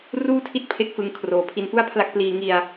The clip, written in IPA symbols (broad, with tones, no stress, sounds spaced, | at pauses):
r uː˥˩ tʰ i˦˥ t̚ pʰ e˦˥ k̚ f ɯ˧ ŋ kʰ r oː˨˩ pʰ i˧ n f u˥˩ a̯ pʰ l a˥˩ k̚ p l iː˧ ŋ i˧ a̯